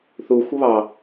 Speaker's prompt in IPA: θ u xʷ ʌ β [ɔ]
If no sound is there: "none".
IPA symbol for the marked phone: ɑ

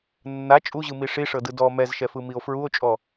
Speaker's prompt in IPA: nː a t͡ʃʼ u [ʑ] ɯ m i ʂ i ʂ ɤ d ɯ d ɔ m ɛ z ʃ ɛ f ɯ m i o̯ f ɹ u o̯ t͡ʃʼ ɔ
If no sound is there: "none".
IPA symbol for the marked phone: ʑ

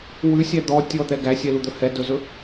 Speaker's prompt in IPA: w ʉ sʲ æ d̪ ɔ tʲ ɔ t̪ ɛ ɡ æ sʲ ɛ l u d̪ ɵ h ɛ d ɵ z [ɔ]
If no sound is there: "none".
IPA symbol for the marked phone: ɵ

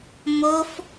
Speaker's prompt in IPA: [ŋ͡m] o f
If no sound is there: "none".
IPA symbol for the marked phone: m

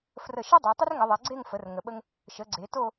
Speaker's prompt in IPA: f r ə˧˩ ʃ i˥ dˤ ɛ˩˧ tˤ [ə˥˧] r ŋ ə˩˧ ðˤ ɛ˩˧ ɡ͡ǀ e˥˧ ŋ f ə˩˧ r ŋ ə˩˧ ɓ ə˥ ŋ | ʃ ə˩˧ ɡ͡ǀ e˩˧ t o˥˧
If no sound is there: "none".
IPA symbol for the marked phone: ə˥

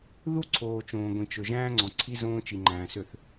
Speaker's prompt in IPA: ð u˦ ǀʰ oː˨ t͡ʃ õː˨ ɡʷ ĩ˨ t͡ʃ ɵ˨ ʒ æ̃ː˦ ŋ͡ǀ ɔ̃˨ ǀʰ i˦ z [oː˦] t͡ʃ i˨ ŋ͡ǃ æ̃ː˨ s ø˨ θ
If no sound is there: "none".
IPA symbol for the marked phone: õː˦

